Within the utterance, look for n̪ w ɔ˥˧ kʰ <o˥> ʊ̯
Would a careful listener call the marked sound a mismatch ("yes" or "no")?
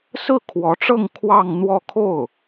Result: yes